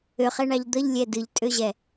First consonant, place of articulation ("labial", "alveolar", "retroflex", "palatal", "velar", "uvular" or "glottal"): uvular